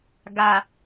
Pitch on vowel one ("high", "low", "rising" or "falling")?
low